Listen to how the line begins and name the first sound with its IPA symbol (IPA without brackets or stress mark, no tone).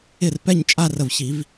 ɪ